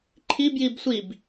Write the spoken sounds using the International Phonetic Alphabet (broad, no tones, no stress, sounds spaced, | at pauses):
ǃʰ i b j i b sʷ i b